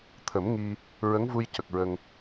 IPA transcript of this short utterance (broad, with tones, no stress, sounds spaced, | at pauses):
t̪ʰ ə˨˩˦ m ŋ i˧ | ɹ ə˧˥ ŋ v u˧ j c ə˨˩ k̚ ɹ ə˧ ŋ